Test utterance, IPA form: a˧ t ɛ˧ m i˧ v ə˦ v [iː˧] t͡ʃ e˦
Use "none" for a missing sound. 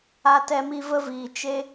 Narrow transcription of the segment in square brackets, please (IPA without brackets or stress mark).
iː˧